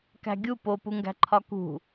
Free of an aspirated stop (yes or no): no